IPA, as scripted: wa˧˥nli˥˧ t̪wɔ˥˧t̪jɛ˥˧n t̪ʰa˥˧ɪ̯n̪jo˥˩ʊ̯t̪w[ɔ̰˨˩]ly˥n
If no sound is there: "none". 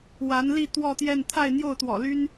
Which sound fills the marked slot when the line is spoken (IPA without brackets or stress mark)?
ɔ̰˨˩